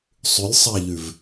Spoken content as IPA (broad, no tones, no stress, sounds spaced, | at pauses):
sˤ ʉ lʲ sˤ a ʎ ʉ v